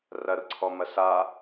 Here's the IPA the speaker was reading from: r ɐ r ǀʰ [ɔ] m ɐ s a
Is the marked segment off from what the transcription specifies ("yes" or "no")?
no